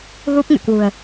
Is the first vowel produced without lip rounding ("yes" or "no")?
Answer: no